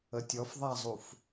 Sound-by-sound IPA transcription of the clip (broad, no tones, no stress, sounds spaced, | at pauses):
ə tʲ ɔ f ðˤ a zˤ u f